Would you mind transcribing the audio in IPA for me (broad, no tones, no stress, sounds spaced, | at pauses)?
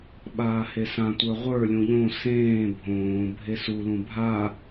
ɓ aː h e s ã tʷ ə˞ ʁʷ ə˞ lʲ ũ ʎ õ s ẽː bʱ õː bʱ e s u l ũ bʱ a